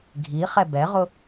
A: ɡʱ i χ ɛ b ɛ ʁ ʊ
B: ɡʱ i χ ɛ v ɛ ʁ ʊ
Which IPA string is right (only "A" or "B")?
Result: A